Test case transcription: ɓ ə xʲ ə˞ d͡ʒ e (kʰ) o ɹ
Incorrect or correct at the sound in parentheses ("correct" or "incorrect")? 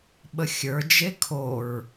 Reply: correct